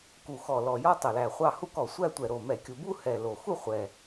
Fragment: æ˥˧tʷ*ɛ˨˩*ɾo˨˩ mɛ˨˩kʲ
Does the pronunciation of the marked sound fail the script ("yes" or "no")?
no